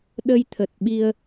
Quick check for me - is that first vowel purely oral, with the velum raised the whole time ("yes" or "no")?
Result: yes